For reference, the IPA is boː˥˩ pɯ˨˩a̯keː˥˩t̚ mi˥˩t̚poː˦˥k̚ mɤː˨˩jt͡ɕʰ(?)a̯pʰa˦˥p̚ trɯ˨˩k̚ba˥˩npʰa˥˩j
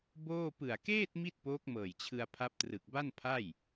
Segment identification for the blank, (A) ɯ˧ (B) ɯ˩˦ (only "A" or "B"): A